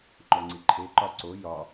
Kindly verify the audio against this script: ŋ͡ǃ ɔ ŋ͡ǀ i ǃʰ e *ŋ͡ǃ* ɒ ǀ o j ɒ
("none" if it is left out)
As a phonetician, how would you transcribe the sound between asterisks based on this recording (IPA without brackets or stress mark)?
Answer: ǃ